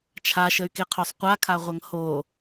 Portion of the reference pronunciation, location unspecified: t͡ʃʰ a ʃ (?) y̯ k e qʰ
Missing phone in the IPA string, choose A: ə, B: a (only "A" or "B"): A